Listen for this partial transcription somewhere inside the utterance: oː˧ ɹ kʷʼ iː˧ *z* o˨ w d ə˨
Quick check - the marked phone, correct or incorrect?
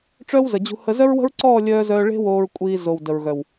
correct